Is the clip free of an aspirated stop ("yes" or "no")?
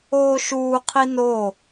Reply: no